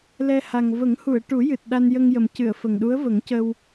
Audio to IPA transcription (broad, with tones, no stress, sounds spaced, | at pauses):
l ɛ˧ h a˨˩ ŋ v ə˨˩˦ ŋ h u˨˩˨ ə̯ ʈ u˨˩˦ j ɨ˨˩ t̚ ɗ a˧ n j ə˧ ŋ j ə˨˩ m c ɨ˨˩˨ ə̯ f ə˨˩ ŋ ɗ u˧˥ ə̯ v ə˨˩˦ ŋ c ə˧ w